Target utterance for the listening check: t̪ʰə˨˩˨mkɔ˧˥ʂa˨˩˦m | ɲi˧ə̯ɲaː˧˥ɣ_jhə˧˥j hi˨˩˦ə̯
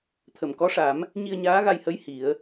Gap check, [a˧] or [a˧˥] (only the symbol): a˧